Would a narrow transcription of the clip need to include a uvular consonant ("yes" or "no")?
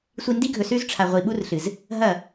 yes